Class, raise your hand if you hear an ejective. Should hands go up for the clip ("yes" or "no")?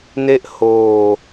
no